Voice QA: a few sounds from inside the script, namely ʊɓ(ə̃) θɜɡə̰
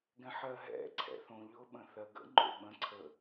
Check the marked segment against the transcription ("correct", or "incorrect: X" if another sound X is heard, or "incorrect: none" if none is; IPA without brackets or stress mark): correct